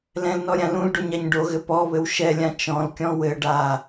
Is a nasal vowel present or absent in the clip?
present